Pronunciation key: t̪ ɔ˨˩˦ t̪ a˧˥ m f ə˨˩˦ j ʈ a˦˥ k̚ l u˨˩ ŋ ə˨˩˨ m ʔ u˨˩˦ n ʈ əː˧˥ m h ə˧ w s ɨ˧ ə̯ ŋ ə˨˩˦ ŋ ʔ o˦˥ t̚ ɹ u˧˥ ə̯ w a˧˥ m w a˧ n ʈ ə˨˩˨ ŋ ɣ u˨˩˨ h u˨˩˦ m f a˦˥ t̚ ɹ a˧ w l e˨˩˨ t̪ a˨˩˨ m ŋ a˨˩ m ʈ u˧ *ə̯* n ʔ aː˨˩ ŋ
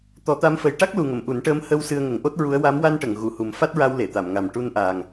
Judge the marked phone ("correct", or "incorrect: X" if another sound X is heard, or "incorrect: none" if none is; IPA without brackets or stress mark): incorrect: none